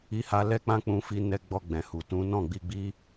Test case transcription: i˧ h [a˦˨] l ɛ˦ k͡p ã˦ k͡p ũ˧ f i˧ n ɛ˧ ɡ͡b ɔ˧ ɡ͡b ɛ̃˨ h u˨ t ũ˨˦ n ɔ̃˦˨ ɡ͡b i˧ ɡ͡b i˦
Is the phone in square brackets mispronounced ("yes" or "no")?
yes